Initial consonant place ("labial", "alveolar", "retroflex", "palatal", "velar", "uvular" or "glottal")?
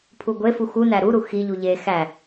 labial